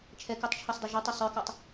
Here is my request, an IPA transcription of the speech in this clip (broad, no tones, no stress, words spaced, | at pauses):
t͡ʃʰɛkatˤt͡ʃʰɔsdˤɵ ʒə˞tˤɔ sˤə˞kɔtˤ